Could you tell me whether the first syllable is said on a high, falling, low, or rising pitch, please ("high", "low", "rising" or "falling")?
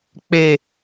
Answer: low